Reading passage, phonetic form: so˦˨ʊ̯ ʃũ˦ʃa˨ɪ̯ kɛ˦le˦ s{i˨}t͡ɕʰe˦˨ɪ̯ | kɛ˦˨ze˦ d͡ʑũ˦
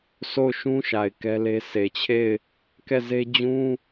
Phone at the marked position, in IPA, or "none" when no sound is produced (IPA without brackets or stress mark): e˨